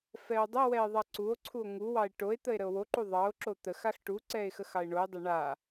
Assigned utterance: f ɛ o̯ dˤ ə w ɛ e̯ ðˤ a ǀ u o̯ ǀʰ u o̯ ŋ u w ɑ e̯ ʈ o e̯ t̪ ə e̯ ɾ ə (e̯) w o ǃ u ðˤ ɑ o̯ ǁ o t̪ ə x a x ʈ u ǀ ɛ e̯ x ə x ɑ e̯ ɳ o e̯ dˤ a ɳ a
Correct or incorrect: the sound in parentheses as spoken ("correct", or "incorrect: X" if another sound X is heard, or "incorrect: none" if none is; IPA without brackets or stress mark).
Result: incorrect: o̯